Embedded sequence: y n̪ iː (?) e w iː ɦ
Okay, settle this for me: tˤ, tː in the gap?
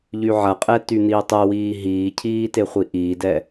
tˤ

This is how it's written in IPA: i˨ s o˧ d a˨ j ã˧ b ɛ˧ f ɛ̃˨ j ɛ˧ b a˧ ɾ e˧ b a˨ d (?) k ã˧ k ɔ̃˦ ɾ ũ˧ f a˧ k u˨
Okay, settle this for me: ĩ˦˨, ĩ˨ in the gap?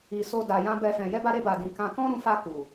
ĩ˨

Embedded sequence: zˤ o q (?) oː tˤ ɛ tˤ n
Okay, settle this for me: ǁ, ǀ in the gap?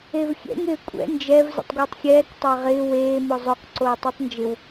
ǀ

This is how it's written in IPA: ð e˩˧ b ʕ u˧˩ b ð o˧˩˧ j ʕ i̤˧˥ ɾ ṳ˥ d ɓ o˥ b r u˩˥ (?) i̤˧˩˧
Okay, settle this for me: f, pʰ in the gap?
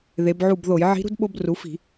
f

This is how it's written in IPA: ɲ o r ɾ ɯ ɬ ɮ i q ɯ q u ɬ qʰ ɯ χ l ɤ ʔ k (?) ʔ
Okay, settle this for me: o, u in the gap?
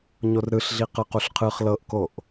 o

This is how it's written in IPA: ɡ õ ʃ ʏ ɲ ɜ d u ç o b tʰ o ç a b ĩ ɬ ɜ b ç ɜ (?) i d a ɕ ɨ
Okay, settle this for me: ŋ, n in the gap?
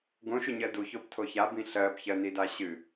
n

